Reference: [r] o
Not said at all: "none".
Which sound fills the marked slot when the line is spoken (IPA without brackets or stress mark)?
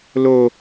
l